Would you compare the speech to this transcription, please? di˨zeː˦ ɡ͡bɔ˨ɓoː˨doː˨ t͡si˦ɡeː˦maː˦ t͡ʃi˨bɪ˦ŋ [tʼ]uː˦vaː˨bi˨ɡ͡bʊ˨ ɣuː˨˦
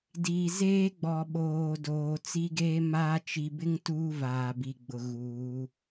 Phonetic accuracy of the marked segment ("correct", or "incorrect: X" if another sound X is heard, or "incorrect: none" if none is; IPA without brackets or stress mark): incorrect: t